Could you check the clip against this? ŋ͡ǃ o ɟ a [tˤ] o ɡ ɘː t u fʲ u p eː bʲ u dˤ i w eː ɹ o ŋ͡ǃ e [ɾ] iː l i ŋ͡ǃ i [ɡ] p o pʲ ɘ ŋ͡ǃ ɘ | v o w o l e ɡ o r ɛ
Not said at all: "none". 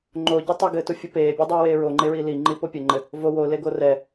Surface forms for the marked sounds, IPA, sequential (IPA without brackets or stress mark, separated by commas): tˤ, ɹ, none